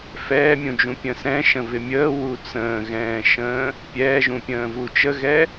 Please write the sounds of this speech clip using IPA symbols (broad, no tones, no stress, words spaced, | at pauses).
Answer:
fɛːmʲũd͡ʒũ pʲə̃sɛ̃ʃə̃ vɪmʲəː wut͡sə̃ːɣɛ̃ːʃə̃ː | pʲɛːʒũpʲə̃ː vut͡ʃəɣɛ